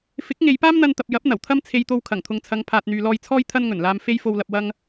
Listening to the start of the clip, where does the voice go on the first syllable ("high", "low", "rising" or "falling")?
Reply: rising